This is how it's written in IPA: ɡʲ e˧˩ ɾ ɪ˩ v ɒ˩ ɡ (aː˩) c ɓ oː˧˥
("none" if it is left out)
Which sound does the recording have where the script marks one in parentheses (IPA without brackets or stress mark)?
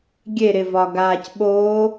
aː˩